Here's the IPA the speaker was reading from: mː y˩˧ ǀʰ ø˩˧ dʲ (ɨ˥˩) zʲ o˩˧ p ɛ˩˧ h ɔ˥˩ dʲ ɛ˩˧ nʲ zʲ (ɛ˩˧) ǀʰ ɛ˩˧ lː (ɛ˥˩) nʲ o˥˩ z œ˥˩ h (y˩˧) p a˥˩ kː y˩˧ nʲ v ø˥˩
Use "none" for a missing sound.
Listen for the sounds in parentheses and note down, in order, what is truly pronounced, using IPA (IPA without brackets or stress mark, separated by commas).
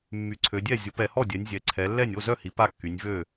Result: ɛ˥˩, ɛ˩˧, ɛ˥˩, i˩˧